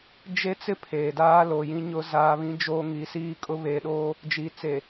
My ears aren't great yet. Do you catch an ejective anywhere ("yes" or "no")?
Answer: yes